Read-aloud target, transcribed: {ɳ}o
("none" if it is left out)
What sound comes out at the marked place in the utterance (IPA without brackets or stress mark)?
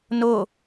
n